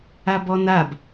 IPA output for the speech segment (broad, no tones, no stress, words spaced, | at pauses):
abɔnab